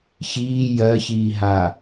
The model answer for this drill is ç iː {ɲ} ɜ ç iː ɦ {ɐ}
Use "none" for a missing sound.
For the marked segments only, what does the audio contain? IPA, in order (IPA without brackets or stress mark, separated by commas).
j, a